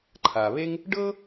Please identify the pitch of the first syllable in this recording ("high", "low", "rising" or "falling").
low